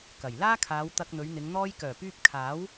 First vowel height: low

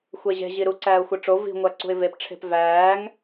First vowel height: mid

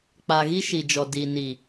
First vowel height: low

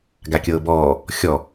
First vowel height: low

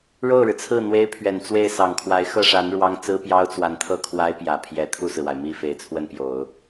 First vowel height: mid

